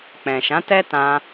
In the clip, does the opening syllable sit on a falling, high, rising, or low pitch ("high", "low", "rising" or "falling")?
low